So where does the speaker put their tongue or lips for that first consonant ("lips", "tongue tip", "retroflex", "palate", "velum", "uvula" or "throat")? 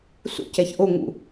tongue tip